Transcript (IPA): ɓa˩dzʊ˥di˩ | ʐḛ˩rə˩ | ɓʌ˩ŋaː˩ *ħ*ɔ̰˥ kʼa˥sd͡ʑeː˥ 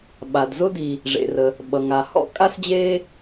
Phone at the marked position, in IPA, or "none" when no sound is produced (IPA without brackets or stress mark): h